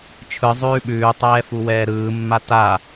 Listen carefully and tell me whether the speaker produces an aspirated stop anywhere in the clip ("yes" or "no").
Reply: yes